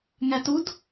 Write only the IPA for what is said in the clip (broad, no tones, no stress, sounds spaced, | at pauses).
ŋ æ t u d